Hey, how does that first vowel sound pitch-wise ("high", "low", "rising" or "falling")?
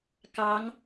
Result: rising